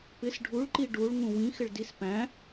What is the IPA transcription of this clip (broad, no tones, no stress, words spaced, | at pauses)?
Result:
pɪs ɖʱuɭ ǃiɖuɭ ŋũwĩ xɪɭdis pæ̃